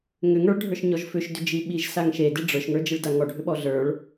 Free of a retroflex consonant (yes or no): no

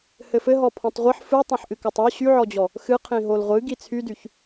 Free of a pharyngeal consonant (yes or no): no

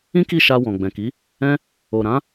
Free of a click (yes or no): yes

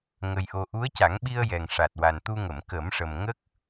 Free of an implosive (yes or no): no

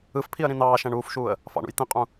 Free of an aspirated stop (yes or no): no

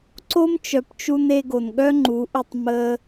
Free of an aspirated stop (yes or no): yes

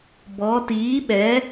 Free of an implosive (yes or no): no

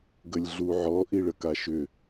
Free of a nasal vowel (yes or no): yes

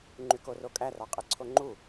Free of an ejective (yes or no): no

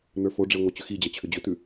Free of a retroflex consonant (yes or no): no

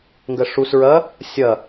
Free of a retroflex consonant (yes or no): no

